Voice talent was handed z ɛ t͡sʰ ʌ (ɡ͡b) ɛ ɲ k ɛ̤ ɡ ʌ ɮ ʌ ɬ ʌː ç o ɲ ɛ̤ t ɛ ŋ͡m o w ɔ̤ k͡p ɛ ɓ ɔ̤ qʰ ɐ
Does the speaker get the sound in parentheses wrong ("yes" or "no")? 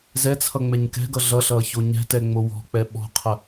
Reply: yes